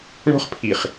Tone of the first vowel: high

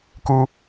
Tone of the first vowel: high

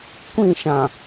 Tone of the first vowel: falling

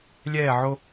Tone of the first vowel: falling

